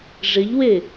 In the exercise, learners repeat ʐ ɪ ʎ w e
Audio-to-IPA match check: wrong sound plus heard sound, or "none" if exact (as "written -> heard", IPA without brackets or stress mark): none